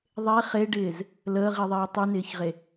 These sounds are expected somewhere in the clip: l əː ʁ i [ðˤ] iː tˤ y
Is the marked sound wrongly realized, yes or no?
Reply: no